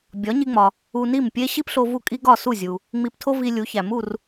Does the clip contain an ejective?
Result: yes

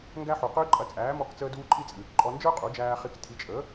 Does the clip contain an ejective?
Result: yes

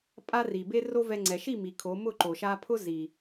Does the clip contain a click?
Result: yes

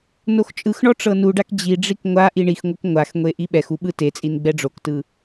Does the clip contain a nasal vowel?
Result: no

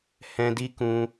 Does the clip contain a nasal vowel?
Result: yes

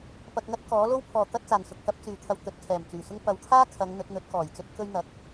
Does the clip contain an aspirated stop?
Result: yes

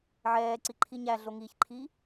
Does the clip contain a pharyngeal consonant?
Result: yes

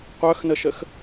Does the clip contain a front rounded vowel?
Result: yes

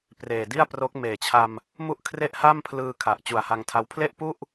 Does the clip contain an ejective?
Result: no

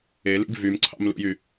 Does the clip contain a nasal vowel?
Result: no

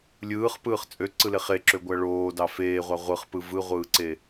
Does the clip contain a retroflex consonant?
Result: yes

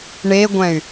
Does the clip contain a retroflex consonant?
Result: yes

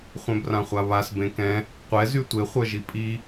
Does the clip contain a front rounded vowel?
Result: yes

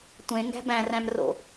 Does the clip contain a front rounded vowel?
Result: no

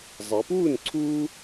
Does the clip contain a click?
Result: yes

